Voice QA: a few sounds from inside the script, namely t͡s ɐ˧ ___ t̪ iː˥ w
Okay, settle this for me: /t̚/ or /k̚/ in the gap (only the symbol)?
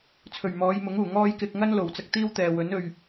k̚